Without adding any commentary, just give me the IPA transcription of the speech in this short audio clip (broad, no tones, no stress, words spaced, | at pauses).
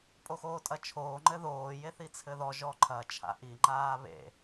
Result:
pʼoxoːtʼɐt͡ʃʰoː ŋ͡ǃɘðoː jeθit͡sʰɘðɔ ʒɔǃʰɐ t͡ʃʰa̰ʔi ŋ͡ǃaːβḛ